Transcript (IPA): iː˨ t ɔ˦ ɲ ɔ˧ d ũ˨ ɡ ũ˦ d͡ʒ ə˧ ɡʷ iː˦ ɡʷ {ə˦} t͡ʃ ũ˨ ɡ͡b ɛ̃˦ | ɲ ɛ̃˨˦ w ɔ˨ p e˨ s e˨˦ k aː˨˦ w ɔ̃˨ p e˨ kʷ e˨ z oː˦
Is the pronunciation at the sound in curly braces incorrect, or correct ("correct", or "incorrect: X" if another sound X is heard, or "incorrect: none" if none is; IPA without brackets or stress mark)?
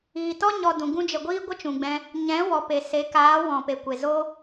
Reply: correct